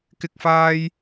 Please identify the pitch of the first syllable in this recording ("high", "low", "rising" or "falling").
high